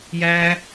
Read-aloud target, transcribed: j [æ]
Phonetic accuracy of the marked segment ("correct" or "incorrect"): correct